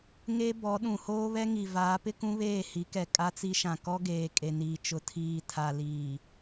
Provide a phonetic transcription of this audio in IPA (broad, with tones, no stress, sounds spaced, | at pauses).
ŋ e˦ b ɔ˨˦ ɗ ũ˨ h oː˦ β ɛ˦ ŋ i˨ v aː˨˦ p ɪ˦ k ũ˦ β eː˦˨ h i˨˦ k ɛ˨ kʼ a˦ t͡s i˦ ʃ ã˨ k ɔ˦ ɡ eː˨ kʼ e˨ n iː˨ t͡ʃ ʊ˨ tʰ iː˨ tʰ a˨ l iː˨